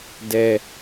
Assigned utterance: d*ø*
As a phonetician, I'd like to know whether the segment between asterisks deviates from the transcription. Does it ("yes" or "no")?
yes